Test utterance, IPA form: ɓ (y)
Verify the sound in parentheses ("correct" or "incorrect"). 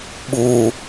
incorrect